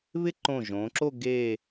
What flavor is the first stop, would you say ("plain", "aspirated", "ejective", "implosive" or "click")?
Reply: click